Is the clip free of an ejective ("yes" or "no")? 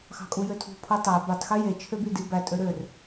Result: no